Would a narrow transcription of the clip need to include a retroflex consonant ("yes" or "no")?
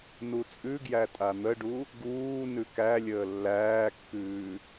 yes